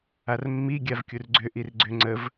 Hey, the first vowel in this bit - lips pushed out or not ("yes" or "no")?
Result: no